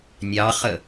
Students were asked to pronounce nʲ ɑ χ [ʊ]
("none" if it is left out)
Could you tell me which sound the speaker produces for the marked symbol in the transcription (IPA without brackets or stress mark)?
ə